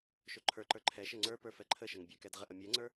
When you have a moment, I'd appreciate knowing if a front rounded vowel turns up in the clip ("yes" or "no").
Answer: no